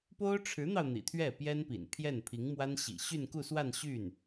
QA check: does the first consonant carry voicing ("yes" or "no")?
no